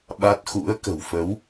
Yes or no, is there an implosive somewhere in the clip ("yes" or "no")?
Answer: yes